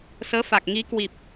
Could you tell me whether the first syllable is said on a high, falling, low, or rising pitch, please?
rising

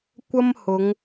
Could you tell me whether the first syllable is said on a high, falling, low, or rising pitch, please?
high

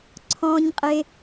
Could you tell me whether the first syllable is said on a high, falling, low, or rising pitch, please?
high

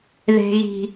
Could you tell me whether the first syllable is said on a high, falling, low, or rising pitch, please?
high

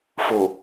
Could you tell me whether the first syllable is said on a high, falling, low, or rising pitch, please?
low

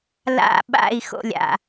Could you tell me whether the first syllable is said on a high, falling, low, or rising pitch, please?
falling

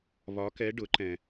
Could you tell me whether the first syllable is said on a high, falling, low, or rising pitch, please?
rising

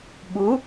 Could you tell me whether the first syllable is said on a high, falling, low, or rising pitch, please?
rising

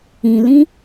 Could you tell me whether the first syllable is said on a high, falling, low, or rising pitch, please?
low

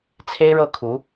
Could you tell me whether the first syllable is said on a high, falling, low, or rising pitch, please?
high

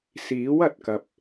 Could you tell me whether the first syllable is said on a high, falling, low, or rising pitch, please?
rising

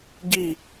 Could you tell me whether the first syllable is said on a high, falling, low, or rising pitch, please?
falling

